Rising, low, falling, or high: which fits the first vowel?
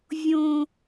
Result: low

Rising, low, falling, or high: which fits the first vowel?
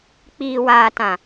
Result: low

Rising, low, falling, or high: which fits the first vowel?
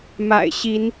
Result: low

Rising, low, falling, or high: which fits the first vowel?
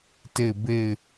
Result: falling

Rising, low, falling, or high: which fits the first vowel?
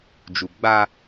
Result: low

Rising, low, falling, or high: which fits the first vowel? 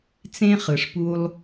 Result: high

